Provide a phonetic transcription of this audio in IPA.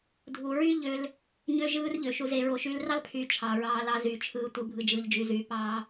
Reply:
dʱ u˨ ɹ y˦ ʎ ø˧ l | ɲ ø˦ ʒ ɯː˦ r ʎ ø˨ ʃ u˧ z e˧ ɹ o˨ ʃ yː˧ l r ɑ˦ l pʰ yː˨ t͡ʃʰ ɑ˨ ɹ ɑː˧ l ɑ˧ z yː˨ t͡ʃʰ ɯː˧ tʷ ɯ˧ bʱ ɯ˨ d͡ʒ ɯː˨ ʎ d͡ʒ y˨ z yː˨ p ɑː˧

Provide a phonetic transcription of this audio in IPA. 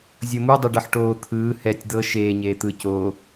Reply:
zʲ ɤ m u dˤ e ɖ ɤ ħ ʈ oː t̪ʰ ɯː h ɛ tʲ d̪ ɤ ʃ eː ɲ eː t̪ ɯ c oː

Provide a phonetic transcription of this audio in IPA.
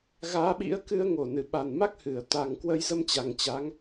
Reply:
ɣ aː˨˦ ɓ ḭ˧˥ ə̯ k ɨ˧ ə̯ ŋ o˧˩ n ɨ˧˩ ɓ a˨˩ n m a˦˥ k̚ h ɨ˧˩ ə̯ t̪ a˨˩ ŋ k w ə˧ j z ə˧ m t͡ɕ a˨˩ ŋ t͡ɕ a˨˦ ŋ

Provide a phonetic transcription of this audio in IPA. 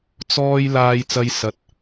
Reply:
t͡s ɔː˥ j l aː˧ j t͡s ɐ˧ j s ɐ˧ t̚

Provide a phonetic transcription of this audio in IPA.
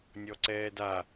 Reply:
nʲ ɔ ǀ ɛː d a

